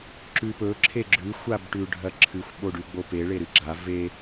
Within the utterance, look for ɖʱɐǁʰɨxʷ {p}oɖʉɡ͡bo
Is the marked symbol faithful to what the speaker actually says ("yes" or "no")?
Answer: no